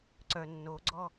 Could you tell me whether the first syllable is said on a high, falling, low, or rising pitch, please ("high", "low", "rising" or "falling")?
low